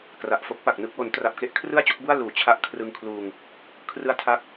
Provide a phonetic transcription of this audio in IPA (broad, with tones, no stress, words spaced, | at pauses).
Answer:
kra˨˩ʔfo˦˥k̚pa˨˩k̚nɯ˥˩k̚ wo˩˦ntra˨˩p̚ke˦˥ʔ kʰrɯ˥˩a̯t͡ɕo˥˩k̚bu˥˩a̯ luː˨˩t͡ɕʰa˦˥ʔ kʰrɯ˧ŋkʰluː˧ŋ | kʰrɯ˦˥a̯tʰa˦˥k̚